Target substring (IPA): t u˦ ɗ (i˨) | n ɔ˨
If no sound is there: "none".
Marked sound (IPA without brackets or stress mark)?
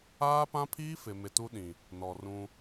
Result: ĩ˨